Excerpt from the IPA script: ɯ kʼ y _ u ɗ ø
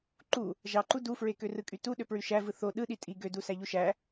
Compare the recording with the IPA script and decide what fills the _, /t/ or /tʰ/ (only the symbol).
t